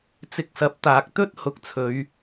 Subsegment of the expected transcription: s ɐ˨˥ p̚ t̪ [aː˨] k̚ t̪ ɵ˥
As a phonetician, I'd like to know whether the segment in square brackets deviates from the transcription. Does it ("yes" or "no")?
no